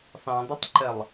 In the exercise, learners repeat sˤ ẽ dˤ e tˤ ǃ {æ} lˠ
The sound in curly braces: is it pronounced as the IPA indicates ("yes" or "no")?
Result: no